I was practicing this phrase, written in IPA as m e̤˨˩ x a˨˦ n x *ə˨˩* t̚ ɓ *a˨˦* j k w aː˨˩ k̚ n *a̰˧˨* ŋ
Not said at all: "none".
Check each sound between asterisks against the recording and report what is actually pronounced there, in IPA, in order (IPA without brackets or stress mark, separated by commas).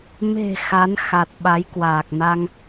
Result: a˨˩, a˨˦, a˧